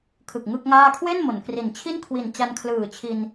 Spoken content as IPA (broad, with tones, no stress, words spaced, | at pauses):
kʰɯ˨˩k̚ŋɯ˥˩k̚ŋaː˥˩ kʰwe˥˩n mo˩˦nkri˨˩n t͡ɕʰi˥˩nkʰwi˨˩n t͡ɕa˧nkʰlɯː˨˩ t͡ɕʰi˧n